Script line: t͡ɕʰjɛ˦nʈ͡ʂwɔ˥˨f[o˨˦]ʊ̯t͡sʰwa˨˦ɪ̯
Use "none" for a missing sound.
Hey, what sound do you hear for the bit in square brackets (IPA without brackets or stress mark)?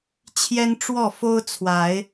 o˦